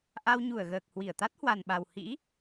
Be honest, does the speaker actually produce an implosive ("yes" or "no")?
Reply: yes